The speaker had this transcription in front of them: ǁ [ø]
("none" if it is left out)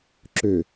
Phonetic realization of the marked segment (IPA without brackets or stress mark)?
ø